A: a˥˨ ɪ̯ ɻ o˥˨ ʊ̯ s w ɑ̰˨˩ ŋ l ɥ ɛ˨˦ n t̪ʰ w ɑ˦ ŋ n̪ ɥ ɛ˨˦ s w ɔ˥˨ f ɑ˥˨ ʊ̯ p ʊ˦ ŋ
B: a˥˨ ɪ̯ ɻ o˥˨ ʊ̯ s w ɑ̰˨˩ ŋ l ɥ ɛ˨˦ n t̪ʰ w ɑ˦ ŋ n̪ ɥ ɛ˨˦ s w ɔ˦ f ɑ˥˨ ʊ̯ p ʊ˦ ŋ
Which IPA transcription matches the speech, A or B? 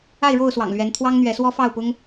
B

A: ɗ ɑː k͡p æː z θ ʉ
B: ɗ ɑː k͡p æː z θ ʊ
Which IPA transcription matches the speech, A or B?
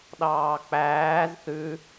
A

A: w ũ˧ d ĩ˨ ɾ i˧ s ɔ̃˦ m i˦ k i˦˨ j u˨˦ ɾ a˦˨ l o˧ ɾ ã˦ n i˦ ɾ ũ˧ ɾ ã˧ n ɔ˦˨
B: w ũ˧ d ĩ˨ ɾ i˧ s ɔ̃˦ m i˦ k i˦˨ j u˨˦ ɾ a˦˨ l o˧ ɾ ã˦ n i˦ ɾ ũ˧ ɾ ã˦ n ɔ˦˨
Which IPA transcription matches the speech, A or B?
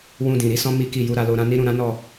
B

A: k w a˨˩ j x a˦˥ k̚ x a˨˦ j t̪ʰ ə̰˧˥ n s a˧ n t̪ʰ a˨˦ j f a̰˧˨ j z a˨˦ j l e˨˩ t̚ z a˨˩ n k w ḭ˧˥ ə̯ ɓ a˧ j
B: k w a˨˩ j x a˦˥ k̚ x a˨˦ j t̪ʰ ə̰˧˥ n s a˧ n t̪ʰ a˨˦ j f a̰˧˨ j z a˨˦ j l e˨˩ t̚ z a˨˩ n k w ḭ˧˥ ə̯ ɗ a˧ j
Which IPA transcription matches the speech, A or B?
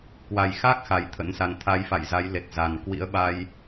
A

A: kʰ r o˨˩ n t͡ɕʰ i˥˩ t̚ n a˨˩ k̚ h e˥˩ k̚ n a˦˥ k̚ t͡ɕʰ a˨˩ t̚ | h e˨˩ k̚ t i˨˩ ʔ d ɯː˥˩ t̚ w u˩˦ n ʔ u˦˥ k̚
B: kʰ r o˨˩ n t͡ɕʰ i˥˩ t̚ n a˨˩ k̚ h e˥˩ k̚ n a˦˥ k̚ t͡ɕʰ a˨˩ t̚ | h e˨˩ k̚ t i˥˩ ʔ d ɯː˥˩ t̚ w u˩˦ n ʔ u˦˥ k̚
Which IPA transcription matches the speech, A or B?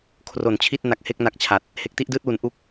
B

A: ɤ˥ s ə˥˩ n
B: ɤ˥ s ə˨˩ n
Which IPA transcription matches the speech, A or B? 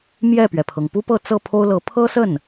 A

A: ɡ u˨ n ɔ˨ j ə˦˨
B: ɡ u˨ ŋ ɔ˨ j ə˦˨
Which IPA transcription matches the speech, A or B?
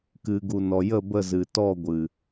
A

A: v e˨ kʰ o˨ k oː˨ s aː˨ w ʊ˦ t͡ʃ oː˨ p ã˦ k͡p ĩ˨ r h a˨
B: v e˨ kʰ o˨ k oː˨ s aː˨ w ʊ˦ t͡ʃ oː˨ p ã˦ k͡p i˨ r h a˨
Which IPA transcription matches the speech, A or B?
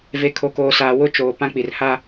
B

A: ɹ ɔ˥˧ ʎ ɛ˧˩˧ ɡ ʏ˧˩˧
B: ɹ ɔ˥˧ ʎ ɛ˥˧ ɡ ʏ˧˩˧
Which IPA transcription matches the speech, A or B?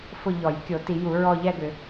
B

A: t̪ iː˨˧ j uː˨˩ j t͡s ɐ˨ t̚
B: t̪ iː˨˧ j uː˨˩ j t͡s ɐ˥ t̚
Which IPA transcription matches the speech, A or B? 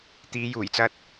B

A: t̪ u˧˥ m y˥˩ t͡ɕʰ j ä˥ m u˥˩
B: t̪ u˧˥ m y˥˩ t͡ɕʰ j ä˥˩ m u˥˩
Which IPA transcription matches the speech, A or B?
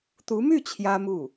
A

